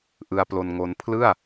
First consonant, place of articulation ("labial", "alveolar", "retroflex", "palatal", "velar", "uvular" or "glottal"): glottal